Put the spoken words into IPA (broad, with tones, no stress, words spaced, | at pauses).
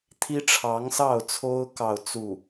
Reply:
t̪ʰi˥ʈ͡ʂʰɑ˧˥ŋsɑ˥˩ʊ̯t͡sʰo˥ʊ̯ kɑ˥˧ʊ̯t͡su˥˩